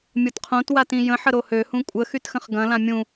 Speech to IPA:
mʲ o t qʰ õ t w a t ĩ j ə̃ ħ ə ɾ o h ø h ũ kʷʼ ə x y t x ə̃ χ ɡ ɐ̃ l ã mʲ ũ

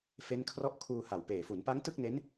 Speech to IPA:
f e˦˥ n kʰ r ɔ˥˩ ʔ kʰ uː˧ h a˨˩ w p eː˨˩ f u˩˦ n p a˦˥ ŋ t ɯ˥˩ k̚ n e˦˥ n

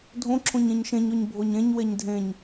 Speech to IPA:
dʱ õ ǁʰ õ ɲ ẽ ɲ ʃ ẽ ɲ o ɲ bʱ o ɲ ẽ ɲ w e ɲ dʱ ẽ ɲ

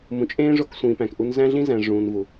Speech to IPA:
m ũ˨ t͡ʃʼ ẽː˦ ʐ o˦ k sʷ ĩː˨ p æ̃˨ k ʔ u˨ n z æ̃˦ ɮ ĩ˦ z æ̃˨ ʐ ũː˨ n v u˨

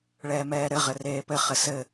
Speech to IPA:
ɭ ɛː m ɛː ɾ ɘ ʁ ɘ r eː p ɘ χ ɘ s ɘ

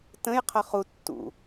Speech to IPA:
t ə̃ j qʰ ʌ χ u tː ṵ

